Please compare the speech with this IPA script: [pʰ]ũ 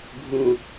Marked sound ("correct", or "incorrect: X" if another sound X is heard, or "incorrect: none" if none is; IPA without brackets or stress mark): incorrect: bʱ